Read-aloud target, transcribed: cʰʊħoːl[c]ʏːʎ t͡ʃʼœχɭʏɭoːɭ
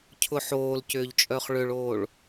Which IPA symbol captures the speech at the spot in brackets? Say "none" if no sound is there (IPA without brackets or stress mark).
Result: c